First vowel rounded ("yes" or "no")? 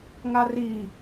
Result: no